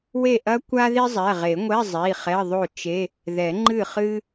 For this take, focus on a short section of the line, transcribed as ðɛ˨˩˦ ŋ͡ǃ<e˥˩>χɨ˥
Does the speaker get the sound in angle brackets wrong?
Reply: yes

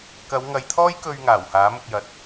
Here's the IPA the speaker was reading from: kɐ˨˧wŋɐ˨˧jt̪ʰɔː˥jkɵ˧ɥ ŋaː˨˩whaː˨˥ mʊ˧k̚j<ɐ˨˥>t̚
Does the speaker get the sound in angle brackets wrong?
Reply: no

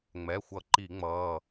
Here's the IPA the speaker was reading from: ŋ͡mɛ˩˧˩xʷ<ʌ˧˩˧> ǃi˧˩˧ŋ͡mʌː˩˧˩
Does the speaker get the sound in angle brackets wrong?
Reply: no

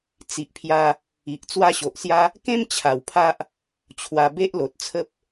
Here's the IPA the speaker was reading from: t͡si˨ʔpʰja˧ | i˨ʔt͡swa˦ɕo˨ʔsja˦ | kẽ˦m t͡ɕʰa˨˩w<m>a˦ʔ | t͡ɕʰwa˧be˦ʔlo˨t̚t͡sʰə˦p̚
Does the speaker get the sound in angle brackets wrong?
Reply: yes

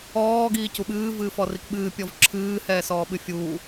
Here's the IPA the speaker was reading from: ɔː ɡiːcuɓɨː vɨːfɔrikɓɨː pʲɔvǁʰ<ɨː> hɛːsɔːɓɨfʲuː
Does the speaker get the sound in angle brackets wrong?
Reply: no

